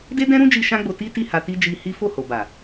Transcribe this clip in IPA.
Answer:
de˦dɛ̃˦ɾũ˦d͡ʒi˧ ʃã˦ɡ͡bo˧ti˦ti˦˨ ha˧ti˦ d͡ʒi˧ hi˦ fo˦˨ho˨ba˨

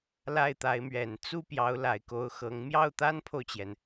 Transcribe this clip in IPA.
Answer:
la˥˩ɪ̯t̪a˧˥ɪ̯mɥɛ˨˩n t͡su˥ pjɑ˧˥ʊ̯la˨˩ɪ̯ko˧˥ʊ̯ xɤ˧˥ŋ mjɑ˥˩ʊ̯t̪a˥npʰo˨ʊ̯t͡ɕjɛ˩n

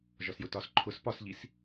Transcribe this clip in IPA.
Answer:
ʒɒsjʊtɒs ǃʰʊs pɒsʎis

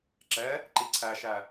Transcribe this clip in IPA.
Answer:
ǁɛ | ǃiǀʰæʃæ

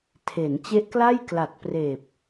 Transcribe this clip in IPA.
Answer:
tʰe˩˦n t͡ɕe˦˥ʔkla˥˩j kla˨˩t̚preː˨˩p̚

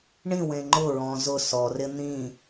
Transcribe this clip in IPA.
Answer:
ɳĩwẽ ŋ͡ǃʊɹɔ̃ zʊ sɔrɪ n̪ĩ

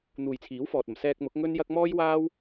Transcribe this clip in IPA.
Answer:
n̪uː˨jt͡sʰiː˨˥wfɔː˨t̚ɐ˨˩m sɛː˧k̚mʊ˨˥k̚ŋɵ˥njɐ˥k̚ mɔː˥jwaː˥w

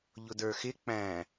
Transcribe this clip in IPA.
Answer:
ʎʊdə˞xɪ k͡pæ̃

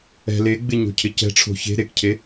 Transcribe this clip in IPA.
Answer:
ɛ̤ leɡ͡bɪ ɲo̤cʰɪcɛ̤ʈ͡ʂʰo̤ çe̤ ɾekcʰe

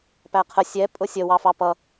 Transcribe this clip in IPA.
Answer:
pæqʰə sʲɛ pʼʊsʲə wɑfɑpʌ

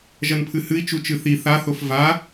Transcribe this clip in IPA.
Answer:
ʒɐnpʰɨhɨi̯ t͡ʃut͡ʃɨθi θaθof va

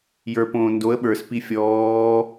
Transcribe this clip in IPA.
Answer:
jə˞põː ndoə̯ ɓə˞spi fʲɔː

